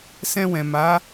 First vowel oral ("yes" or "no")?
no